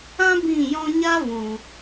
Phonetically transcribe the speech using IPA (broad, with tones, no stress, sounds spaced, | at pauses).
ã˦ b ĩ˦˨ j ɔ̃˦ ɲ a˦ v ũ˨